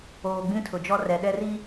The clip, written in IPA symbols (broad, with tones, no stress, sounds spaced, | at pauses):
oː˨ ɡ͡b ĩ˦ tʰ ʊ˨ d͡ʒ ɔ˦ r ɛ˨ ɗ ɛ˦ r i˦